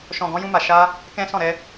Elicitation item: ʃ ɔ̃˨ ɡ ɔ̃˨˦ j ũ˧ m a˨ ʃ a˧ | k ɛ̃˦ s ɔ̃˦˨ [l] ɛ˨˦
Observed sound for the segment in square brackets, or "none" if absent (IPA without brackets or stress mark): ɾ